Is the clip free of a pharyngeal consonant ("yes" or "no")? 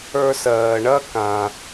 yes